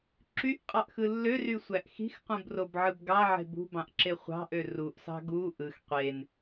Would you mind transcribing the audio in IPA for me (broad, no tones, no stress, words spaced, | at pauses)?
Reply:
ǁyʔqʼɑʔxɯ lːørysʷæʔ xi̤xqũbrobʕɯb ɡɑʕe̤ bṳbɑ̃ʔǁe χʷɑ̤ʔø ruʔsɑ̤ ɡu ʔɯx qʷen